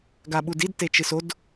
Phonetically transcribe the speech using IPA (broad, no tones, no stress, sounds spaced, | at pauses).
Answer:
ɡ a ɓ u d i d t e t͡ʃ ɨ s o d